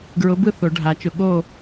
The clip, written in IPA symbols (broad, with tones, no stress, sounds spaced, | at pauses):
ɡ ɹ ʊ˨˥ b ɯ˥˨ θ o˨˩˦ ɖʱ a˨˩˦ t͡ʃ ʊ˨˥ ɠ o˥˨